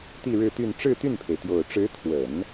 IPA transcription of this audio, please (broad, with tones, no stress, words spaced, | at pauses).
t̪i˥˧ɻɻ̩˥˧t̪y˥˧n ʈ͡ʂɻ̩˥˧t̪y˥˩npʰe˩ɪ̯t̪jo˨˩ʊ̯ ʈ͡ʂɻ̩˧˥t̪ʰwə˨˩˦n